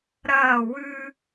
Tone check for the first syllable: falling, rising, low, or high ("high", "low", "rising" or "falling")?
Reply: falling